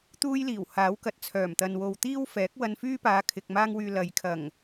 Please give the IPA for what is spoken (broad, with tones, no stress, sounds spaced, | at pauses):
t̪ uː˥ j l iː˨˩ w h aː˨˥ w k ɐ˨ t̚ t͡sʰ œː˨˩ m t̪ ɐ˨ n w o˨ w t̪ iː˥ w f ɛː˨˥ k̚ w ɐ˧ n f yː˥ p aː˨˧ kʰ ɪ˨ k̚ m aː˥ ŋ w yː˧ l ɐ˨ j kʰ ɐ˨˩ ŋ